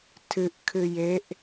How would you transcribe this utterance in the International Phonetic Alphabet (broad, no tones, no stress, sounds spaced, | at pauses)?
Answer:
tʰ ɨ ʔ kʰ ɨ j e ʔ